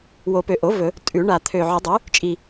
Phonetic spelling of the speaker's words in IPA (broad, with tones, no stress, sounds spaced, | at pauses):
w o˨˩˦ p ø˨˩ ʔ o˩˥ v ɵ˨˩˦ | tʼ ʉ˨˩˦ ɳ a˨˩ t̪ʰ ø˨˩ ʕ ɵ˨˩˦ dˤ ʉ˩˥ | t͡ʃʼ i˨˩